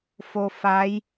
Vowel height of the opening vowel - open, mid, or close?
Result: mid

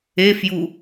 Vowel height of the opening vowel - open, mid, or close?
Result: mid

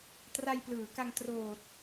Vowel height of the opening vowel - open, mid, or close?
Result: open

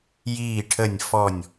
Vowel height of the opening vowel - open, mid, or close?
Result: close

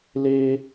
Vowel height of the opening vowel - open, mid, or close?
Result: mid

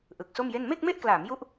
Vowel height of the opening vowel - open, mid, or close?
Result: close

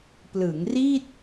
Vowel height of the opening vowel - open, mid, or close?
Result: close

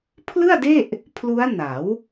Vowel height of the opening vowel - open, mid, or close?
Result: close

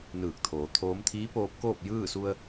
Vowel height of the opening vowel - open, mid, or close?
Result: close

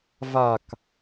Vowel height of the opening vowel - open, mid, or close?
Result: open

